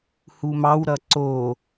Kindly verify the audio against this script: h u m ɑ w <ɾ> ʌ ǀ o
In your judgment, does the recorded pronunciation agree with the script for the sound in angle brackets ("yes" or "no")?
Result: yes